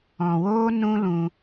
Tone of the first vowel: low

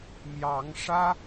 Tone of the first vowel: rising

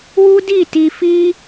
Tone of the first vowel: high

